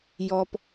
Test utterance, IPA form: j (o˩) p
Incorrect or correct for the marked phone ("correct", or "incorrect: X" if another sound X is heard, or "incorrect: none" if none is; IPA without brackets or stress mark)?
incorrect: ɔ˩